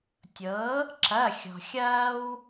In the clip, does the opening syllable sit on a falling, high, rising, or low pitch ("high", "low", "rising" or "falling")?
rising